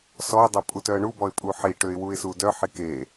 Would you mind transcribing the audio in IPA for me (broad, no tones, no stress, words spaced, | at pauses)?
sɔɪ̯dˤe pʼutœə̯ɳubɔɪ̯ pʼuħiʈøɪ̯ wuɪ̯sudœħi ke